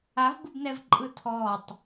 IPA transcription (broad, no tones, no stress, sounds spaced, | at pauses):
a v b ɯ b n ɛ v ǃʼ ɯ tʰ ɔ tˤ